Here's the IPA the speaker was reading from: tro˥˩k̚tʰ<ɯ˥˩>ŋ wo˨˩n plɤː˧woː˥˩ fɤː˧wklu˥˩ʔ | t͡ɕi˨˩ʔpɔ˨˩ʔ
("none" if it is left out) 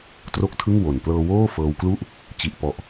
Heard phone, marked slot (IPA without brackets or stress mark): ɯ˥˩